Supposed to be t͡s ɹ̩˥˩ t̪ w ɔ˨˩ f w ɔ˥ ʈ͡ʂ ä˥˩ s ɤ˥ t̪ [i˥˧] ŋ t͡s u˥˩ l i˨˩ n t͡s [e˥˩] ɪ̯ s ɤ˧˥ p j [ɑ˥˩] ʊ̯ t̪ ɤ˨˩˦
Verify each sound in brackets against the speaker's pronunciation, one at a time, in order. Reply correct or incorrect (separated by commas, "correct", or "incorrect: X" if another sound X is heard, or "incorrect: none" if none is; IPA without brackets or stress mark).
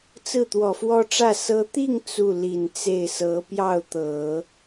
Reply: correct, correct, correct